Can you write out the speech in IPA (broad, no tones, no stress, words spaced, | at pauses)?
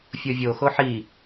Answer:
fʲovʲo xoħi